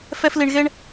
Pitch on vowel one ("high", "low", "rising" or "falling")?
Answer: high